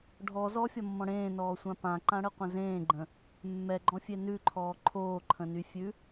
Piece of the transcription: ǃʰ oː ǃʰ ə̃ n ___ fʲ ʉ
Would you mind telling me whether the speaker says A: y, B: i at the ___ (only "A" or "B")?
A